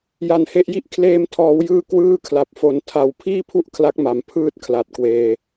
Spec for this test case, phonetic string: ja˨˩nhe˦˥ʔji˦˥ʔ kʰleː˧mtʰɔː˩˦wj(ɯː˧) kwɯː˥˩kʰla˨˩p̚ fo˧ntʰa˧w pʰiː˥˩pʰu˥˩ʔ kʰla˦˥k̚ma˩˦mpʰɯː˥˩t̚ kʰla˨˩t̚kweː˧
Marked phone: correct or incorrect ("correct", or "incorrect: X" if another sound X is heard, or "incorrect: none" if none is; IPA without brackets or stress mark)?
correct